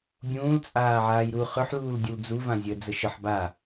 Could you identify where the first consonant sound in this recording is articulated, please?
labial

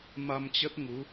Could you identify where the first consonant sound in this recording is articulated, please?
labial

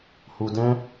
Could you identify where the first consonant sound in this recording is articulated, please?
glottal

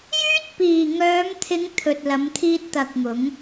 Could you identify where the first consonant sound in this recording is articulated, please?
palatal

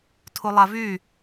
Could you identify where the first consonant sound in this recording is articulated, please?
alveolar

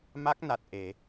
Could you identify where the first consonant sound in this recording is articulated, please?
labial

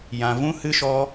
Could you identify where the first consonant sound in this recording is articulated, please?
palatal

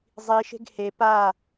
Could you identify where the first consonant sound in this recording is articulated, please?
alveolar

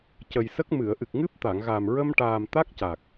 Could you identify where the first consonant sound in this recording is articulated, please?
palatal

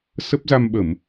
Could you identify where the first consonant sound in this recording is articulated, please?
alveolar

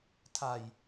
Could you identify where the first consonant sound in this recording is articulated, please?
alveolar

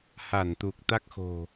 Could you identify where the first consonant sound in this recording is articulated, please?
glottal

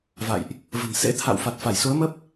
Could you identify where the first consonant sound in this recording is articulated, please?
labial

